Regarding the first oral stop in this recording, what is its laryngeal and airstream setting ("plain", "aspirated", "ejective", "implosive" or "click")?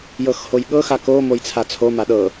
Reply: implosive